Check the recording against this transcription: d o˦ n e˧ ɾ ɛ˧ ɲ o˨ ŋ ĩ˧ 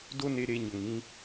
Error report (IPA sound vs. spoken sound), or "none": ɛ˧ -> e˧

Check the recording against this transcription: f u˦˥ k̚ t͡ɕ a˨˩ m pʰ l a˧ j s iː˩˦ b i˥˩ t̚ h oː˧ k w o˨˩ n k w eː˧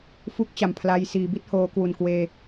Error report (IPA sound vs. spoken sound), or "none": o˨˩ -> u˨˩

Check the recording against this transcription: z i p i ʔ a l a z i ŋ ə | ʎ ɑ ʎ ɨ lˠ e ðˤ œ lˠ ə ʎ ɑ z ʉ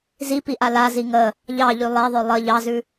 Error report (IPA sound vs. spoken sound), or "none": ɨ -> ʉ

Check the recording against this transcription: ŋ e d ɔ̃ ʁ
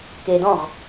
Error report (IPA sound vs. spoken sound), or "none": ŋ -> k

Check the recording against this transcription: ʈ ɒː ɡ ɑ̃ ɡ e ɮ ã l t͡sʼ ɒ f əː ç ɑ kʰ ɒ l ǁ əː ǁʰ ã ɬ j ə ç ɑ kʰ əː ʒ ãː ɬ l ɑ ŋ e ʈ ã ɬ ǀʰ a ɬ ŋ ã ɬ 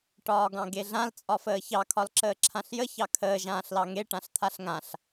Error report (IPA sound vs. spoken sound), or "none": ǀʰ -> t̪ʰ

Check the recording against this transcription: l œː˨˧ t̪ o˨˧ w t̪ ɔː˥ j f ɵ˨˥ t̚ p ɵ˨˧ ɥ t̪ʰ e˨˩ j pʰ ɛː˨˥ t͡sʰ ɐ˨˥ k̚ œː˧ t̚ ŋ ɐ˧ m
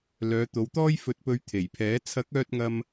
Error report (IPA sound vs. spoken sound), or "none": none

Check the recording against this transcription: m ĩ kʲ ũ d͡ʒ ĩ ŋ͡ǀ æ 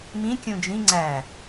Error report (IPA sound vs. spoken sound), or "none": none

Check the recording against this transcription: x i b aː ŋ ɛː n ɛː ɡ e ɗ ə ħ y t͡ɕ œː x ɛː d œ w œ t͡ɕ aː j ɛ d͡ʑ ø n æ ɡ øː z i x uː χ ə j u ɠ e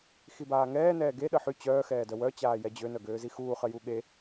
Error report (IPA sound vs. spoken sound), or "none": æ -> œ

